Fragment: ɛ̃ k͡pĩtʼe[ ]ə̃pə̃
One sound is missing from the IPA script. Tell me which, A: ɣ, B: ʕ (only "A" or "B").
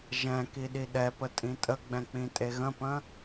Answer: A